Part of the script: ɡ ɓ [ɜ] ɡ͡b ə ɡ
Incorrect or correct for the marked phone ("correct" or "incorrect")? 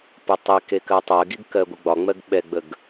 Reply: incorrect